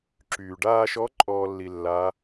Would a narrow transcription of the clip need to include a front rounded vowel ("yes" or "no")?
yes